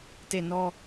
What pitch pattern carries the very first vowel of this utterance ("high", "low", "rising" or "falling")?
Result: falling